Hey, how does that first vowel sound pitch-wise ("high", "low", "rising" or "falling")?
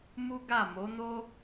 high